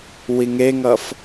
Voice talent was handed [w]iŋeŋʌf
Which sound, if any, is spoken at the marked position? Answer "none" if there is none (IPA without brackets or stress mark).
w